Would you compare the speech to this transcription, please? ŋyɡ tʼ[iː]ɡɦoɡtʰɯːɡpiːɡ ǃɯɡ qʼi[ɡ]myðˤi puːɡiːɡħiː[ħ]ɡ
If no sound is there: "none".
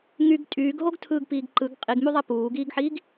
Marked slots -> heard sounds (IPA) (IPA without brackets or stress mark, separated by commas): yː, ɡ, none